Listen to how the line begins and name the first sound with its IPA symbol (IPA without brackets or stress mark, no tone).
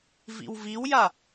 v